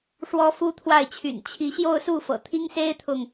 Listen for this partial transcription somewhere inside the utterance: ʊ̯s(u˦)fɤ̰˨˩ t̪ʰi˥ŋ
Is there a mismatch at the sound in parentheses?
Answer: yes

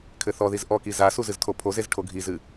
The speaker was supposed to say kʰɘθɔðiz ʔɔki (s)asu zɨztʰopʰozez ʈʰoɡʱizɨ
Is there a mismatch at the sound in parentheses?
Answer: yes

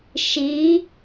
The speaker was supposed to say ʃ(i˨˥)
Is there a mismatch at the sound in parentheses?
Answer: no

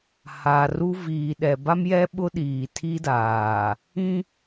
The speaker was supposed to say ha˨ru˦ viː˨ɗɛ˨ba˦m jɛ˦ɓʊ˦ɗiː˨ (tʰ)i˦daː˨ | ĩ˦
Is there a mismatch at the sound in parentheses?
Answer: no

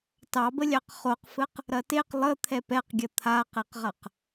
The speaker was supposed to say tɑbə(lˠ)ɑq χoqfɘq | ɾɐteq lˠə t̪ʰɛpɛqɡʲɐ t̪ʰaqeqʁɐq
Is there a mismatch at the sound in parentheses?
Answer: yes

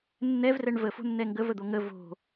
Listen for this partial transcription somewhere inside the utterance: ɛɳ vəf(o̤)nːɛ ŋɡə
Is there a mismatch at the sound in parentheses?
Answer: no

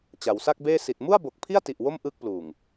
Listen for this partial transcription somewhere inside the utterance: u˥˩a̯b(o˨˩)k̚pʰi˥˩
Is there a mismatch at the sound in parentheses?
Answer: no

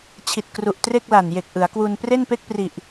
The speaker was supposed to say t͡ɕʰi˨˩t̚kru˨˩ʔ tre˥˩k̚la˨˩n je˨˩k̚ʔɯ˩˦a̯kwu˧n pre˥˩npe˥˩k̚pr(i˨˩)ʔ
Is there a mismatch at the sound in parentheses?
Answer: no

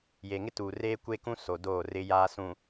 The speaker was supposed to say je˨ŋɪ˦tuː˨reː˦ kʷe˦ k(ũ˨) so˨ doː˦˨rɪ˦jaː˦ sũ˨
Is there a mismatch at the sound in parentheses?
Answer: yes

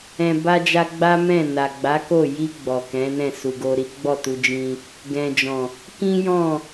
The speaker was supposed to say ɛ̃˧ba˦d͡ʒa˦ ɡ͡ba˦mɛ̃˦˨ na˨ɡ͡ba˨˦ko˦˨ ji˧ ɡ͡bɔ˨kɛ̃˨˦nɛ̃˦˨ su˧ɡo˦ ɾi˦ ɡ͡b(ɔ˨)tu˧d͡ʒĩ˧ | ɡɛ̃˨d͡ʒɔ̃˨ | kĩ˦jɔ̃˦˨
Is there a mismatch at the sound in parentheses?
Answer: yes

